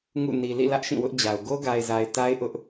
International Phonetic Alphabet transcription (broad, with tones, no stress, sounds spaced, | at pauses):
ŋ ṵ˦˨ n i˨ l ḭ˦˨ l ä˦ ʔ ʃ ĩ˦˨ w ʊ˦ ʔ d͡ʑ a˨ ʊ̯ ɡ o˦ ɡ a˨ ɪ̯ z a˨ ɪ̯ t a˦ ɪ̯ ʔ ʊ˦ ʔ